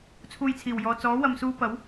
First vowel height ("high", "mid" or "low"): high